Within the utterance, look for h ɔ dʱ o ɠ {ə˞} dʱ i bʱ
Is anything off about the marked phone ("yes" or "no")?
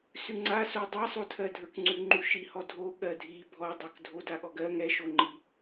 yes